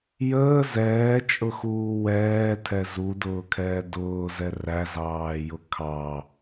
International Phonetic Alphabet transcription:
j əː z ɛː t͡ʃʼ ʊ x uː w ɛː tʰ ɛ z u d ʊː kʰ ɛː d ʊː z ɛ r æ z ɑː j ʊ kʰ ɑ

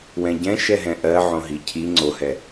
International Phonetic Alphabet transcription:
w ɛ̃ ɟ ɛ̃ ʃ ɛ ɦ ɛ̃ ʔ ɜ ʕ õ ɦ i cʰ i ŋ͡ǀ o h ɛ

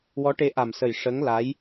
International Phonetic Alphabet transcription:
w ɔ˧˥ ʈ e˧˥ ʔ a˨˩ m s ə˨˩ j ʂ ə˧˥ ŋ l a˧˥ j

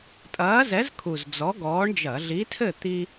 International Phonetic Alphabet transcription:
tʼ ɐː˨˥ z ɛ˨˥ z kʰ u˨˩ z d͡z ɔ˨˥ ɡ ɔː˨˥ ɳ d͡ʒ ɐ˧˩˧ ɮ i˨˥ tʰ ɘ˥˨ t̪ i˦

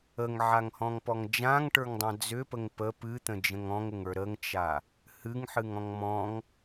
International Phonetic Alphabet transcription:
ə ŋ ʕ a ŋ h ɔ̃ ŋ p ɔ ŋ d͡ʒ ã ŋ ʈ ə˞ ŋ dˤ ã d͡z ʏ p ə ŋ p ə p ɨ t̪ ə̃ d͡ʒ ə̃ ŋ ɔ̃ ŋ ə ŋ ə˞ ɾ ə ŋ t͡ʃ a | h ɨ ŋ ħ ɨ ŋ ɔ̃ ŋ m ɔ̃ ŋ

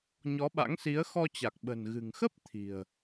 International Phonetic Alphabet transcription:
ɲ ɔ˨˦ ɓ a̰˧˥ ŋ s i˨˦ ə̯ x ɔ˧ t͡ɕ a˨˩ k̚ ɓ ə̤˨˩ n ɣ ɨ̤˨˩ ŋ x ə˦˥ p̚ t̪ʰ i̤˨˩ ə̯

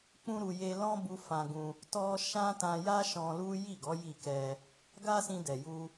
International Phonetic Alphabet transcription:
k͡p ũ˦ ɾ u˧ j e˧ l ɔ̃˦ b u˦ f ã˧ ɡ ũ˧ | t ɔ˦ ʃ ã˦ t ã˧ j a˦ ʃ ɔ̃˧ l u˦ j i˦˨ ɡ ɔ˨˦ j i˦˨ k ɛ˧ | ɡ a˦ s ĩ˧ d ɛ˨ j u˧

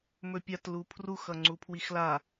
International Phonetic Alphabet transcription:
m ɵ pʲ a t l u pʰ r u x ʌ ŋ͡ǀ u pʰ w i x l a

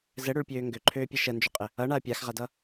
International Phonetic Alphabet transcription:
z ɘ ɽ ø ɭ pʲ øː ŋ ɡ ø ǃʰ øː pʲ ɛ ʃ ə n d͡ʒ ø qʼ ɘ | ʌ ɳ a ɐ̯ pʲ a x ʁ a d ʌ

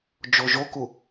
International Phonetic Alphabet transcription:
d͡ʒ o ʒ o k u

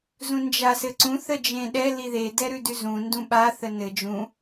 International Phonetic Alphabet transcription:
z ũ n d͡ʒ a s ɘ ǀ ũ θ ə d͡ʒ ẽ ɗ ɛ l i ð e d ɛ ɾ ʉ d ʉ z ũ n d ũ ɓ a θ ə n ɘ d͡ʒ ũ

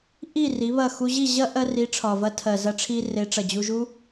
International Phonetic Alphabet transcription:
ʔ i˦˨ r i˨˦ β ɐ˦˨ x u˧ ʑ i˦˨ ʑ ɐ˦ ʔ ɜ˧ r i˨˦ ʈ͡ʂʰ ɒ˨ v ɐ˧ tʰ ɜ˨ z ɐ˧ ʈ͡ʂʰ i˧ r e˨˦ ʈ͡ʂ ɐ˨ d͡ʑ u˧ ʒ u˦

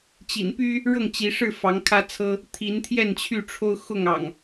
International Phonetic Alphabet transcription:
t͡ɕ ḭ˨˩ n p y˦ | ɻ ɤ˥˨ ŋ t͡ɕ i˨˦ ʂ ɻ̩˥˨ f ɑ˨˦ ŋ kʰ ä˦ t͡sʰ ɤ˦ | t̪ʰ i˨˦ n t̪ʰ j ɛ˥˨ n t͡ɕʰ y˥˨ ʈ͡ʂʰ o˦ ʊ̯ x ʊ˥˨ ŋ ɑ̰˨˩ ŋ

